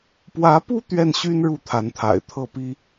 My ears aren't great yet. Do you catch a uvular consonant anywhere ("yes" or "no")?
no